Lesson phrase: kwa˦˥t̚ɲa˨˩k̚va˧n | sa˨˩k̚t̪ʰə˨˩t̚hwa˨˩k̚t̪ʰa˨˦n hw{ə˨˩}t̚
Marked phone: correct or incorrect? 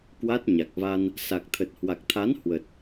correct